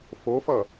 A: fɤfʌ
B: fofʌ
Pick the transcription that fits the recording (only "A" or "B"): B